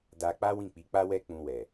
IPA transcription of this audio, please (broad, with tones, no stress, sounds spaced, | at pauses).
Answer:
d a˧ k͡p a˦ w ĩ˦˨ k͡p i˨˦ k͡p a˦ w ɛ˦ k͡p ũ˧ w ɛ˨